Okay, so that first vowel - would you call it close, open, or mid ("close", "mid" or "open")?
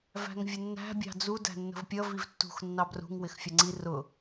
open